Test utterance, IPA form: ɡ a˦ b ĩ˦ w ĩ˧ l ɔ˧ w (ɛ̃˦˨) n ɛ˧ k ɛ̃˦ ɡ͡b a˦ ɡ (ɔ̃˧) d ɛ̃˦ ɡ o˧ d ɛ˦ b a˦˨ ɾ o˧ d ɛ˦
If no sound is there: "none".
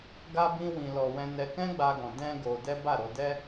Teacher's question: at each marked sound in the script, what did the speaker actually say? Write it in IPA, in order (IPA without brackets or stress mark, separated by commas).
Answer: ɛ̃˧, ɔ̃˧